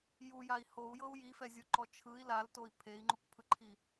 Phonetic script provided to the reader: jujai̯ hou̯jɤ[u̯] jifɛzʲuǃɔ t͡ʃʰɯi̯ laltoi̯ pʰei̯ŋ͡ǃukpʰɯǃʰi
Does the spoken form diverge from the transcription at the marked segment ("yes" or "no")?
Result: no